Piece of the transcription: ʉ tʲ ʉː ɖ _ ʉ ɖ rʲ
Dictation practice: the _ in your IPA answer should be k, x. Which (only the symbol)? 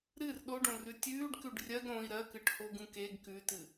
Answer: k